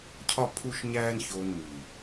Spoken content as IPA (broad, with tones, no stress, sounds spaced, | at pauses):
cʰ ɒ˦ pʰ u˦ ʃ ɲ æː˦ n ç oː˧ n m iː˨